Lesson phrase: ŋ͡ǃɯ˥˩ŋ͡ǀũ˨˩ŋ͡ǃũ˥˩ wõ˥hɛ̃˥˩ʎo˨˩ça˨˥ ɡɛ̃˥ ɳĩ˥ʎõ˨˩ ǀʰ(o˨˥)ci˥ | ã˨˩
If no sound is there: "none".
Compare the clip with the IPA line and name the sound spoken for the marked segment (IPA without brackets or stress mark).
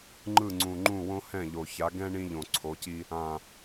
o˨˥